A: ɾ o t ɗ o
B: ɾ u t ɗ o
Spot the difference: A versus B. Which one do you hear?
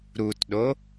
B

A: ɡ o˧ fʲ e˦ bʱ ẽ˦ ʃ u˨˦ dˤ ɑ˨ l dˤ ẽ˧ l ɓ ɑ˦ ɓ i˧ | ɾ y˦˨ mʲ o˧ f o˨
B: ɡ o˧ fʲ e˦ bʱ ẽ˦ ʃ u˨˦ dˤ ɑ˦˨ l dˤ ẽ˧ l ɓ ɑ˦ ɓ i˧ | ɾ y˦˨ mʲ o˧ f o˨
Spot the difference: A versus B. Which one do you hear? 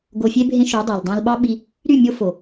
A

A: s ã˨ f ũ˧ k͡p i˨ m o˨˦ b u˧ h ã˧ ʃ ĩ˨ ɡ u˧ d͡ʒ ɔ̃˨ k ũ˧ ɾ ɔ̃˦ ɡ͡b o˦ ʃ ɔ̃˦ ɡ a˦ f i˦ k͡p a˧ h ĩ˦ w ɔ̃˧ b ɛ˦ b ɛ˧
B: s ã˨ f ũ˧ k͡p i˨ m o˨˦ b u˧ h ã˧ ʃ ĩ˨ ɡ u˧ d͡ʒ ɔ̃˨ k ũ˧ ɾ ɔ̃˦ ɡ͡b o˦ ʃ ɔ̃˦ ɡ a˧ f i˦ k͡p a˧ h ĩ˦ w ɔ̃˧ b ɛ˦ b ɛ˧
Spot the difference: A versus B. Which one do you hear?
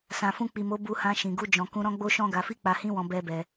B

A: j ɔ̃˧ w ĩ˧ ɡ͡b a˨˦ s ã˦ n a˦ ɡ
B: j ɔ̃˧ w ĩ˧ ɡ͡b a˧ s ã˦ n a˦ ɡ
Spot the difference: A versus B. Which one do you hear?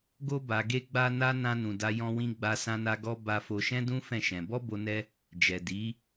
B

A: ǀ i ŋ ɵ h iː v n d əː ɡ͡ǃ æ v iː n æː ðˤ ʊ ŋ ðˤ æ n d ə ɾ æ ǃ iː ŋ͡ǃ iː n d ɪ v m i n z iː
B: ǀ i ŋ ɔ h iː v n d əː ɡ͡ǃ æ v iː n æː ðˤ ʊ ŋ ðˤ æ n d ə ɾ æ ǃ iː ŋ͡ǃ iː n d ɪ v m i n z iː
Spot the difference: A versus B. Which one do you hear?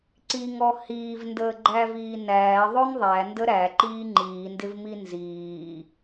B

